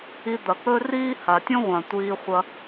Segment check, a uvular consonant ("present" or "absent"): present